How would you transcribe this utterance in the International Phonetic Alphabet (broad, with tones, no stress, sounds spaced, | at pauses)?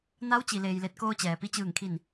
n a˧˥ w t͡ɕ i˩ l eː˩ j l e˧˩ t̚ k oː˧ t͡ɕ ɛː˩ p i˧ t͡ɕ ɯː˧˩ ŋ kʰ i˧˩ n